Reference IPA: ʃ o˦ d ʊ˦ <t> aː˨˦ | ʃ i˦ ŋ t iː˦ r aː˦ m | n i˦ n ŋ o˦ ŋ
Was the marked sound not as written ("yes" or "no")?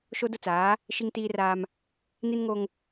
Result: yes